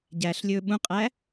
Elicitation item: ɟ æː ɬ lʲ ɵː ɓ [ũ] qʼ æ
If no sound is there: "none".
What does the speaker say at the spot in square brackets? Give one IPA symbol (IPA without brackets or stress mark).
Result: ũ